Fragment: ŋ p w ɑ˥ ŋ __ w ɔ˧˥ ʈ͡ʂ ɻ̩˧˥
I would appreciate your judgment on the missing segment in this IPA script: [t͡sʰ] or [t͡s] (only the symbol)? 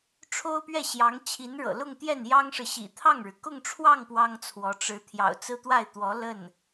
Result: t͡sʰ